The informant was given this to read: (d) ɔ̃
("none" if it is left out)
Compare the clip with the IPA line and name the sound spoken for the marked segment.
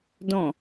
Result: d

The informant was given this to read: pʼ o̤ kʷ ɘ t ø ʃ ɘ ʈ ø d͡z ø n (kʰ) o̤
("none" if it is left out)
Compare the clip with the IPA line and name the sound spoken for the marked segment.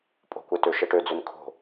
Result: kʰ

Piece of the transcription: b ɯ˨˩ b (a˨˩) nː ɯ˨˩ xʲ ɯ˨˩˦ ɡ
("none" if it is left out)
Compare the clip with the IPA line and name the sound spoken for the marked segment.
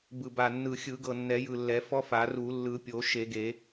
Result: a˨˩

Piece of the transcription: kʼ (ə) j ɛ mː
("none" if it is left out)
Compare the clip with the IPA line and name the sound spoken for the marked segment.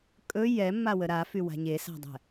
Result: ɵ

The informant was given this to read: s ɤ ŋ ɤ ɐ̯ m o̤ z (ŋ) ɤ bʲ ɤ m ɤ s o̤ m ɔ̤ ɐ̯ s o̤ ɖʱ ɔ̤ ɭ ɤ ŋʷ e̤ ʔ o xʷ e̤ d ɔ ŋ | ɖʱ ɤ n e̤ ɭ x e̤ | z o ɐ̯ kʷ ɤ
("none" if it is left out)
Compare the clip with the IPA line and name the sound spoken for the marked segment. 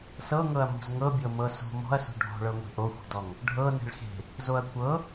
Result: ŋ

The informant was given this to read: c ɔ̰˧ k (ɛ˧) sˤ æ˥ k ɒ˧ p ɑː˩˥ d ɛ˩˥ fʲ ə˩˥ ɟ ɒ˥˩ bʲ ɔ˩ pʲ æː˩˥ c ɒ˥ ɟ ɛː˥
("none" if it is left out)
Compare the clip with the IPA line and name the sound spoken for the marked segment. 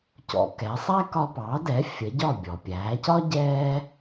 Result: ɛ˩˥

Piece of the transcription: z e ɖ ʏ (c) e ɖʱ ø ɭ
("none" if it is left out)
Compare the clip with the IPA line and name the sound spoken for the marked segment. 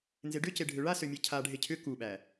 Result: c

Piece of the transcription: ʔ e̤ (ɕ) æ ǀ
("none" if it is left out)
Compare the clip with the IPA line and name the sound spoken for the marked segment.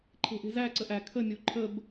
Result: z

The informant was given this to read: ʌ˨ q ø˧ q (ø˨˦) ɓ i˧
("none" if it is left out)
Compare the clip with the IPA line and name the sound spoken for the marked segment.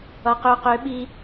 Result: ø˨˦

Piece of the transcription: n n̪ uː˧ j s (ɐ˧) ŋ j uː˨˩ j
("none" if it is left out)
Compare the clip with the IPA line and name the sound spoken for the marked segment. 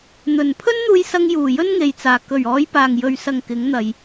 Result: ɐ˧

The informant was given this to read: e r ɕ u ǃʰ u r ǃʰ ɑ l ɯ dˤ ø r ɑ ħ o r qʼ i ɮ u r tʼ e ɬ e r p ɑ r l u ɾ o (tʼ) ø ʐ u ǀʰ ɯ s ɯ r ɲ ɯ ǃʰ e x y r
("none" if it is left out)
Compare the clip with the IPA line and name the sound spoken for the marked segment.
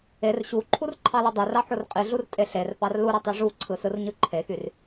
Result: tˤ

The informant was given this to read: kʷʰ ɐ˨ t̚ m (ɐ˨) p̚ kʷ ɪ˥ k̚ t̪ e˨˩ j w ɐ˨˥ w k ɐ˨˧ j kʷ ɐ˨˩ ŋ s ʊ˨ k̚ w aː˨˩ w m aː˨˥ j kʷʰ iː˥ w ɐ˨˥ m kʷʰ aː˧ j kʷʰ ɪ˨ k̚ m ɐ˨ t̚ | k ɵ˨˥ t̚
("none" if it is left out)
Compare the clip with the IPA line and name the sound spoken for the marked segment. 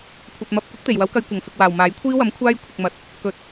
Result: ɐ˨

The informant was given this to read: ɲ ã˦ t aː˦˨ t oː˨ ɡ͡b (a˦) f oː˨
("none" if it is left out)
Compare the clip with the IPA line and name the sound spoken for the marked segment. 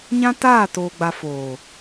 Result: a˨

